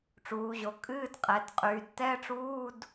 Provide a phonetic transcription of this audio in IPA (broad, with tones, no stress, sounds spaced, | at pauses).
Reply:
ʈ͡ʂ uː˩˧ ʑ o˩˧ kʼ ɨː˧˥˧ d qʼ ɛ˩˧ d qʼ yː˩˧ d t ɛ˧˥˧ ʈ͡ʂ uː˧˥˧ d